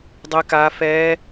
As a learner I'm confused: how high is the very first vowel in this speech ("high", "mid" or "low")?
mid